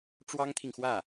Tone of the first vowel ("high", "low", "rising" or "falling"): high